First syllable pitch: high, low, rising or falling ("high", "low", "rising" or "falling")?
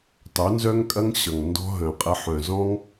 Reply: rising